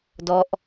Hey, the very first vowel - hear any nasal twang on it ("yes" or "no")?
no